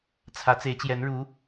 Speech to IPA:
t͡sʰ ä˧˥ t͡s e˧˥ ɪ̯ t͡ɕ j ɛ˧˥ n ɻ u˧˥

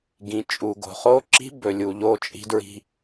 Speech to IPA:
ɡ ĩ˨ t͡ʃʼ u˨ ɡ o̤˨ χ o˦ ǁ i̤˦ b ɵ˨ lʲ u˨ ʎ o˦˨ t͡ʃʼ i̤˦ d ɹ i̤˦

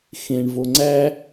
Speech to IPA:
x ẽ ɳ v o ŋ͡ǀ æ

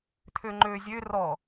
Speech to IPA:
tʰ ø ŋ͡ǃ ø zʲ ø r ɔ

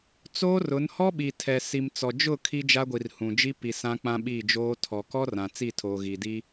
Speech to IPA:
t͡s oː˦ r ʊ˨˦ n h ɔ˦ ɓ i˨ tʰ ɛ˨ s i˨ m t͡s ɔ˨ d͡ʒ ʊ˦˨ kʰ i˦ d͡ʒ a˦ ɡʷ i˨ r h ũ˨ d͡ʒ i˦ p i˨ s ã˦ k͡p ã˦ ɓ iː˦˨ d͡ʒ oː˦ tʰ ɔ˨ k ɔ˦ r ã˨ t͡s i˦˨ tʰ oː˨ ɣ iː˨ d i˦

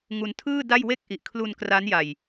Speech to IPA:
ŋ u˧ n tʰ ɯː˥˩ d a˥˩ j w e˥˩ k̚ ʔ i˨˩ ʔ kʰ l u˧ n k r a˦˥ n j a˧ j

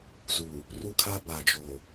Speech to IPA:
z u˨ | r u˦ kʰ a˦ b a˨ d͡ʒ o˨

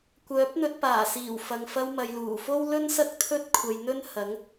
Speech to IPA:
kʷ œː˨˥ p̚ n̪ ɵ˧ t̚ p aː˨˩ s iː˨˩ w f ɐ˨ ŋ f ɐ˧ w m ɐ˨ j l uː˨˩ f o˥ w l ɵ˥ n s ɐ˥ k̚ t̪ʰ ɵ˥ t̚ kʷʰ ɐ˧ j n̪ ɵ˥ n h ɐ˨˥ ŋ

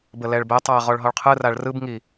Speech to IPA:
b ə l ɛ ɭ b ɛ tˤ a ɐ̯ ʁ ɔ ɭ ɦ ɔ ɭ qʰ ɯ r a ɭ r ɯ b ŋ i

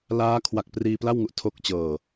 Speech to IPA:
l aː˦˥ kʰ w a˨˩ k̚ p r iː˧ p l a˥˩ w ŋ u˨˩ ʔ tʰ o˦˥ k̚ t͡ɕ ɤː˨˩

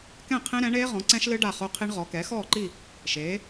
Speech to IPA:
k ɛ̃˥˨ qʰ ẽ˦˥ ɾ ɛ̃˩˥ ɳ eː˦˥ ʁ ɔ̃˩˥ ǀ ɛ̃˦˥ ʃ l ɨ˦˥ ɖ a˥˨ χ o˦˥ qʰ i˦˥ ɳ ʁ ɔ˩˥ k ɛ˩˥ x ɔː˥˨ ǃ i˥˨ | ʃ eː˩˥

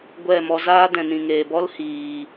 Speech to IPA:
ɡʷ ɛ˦˨ m ɔ˧ z aː˦ d ɛ̃˨ n ĩ˨ ŋ eː˨ b ɔ˦ l h iː˨

